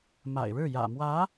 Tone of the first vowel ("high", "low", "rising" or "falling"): low